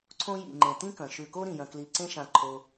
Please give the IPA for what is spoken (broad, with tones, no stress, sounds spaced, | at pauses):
ǀʰ õ˦ j ḭ˩ ŋ͡ǃ ẽ˩ t ĩ˥ k ɐ̃˩ ʃ ʉ˨ k o˥ ɾ ĩ˩ j ɐ̃˨ k l i˨ ǀ ẽ˥ ʃ ã˨ ǃʰ o˨